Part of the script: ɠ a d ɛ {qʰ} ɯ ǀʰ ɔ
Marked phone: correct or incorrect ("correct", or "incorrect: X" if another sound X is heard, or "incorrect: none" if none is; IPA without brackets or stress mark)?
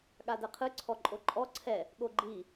correct